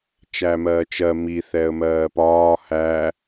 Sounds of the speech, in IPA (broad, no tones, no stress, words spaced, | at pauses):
t͡ʃæmɜːt͡ʃɜ mi θɛə̯mɜːpɒː hæ